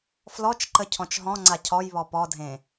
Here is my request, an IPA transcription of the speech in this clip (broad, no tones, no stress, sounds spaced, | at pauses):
f l ɔ t͡ʃ ǃ ə cʰ ɔ̃ t͡ʃ ɦ ɔ̃ ŋ͡ǀ a cʰ ɔ j β ɔ p ɔ dʱ ẽ